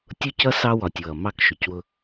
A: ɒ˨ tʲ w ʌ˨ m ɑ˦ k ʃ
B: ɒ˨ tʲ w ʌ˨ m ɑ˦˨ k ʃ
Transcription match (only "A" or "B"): B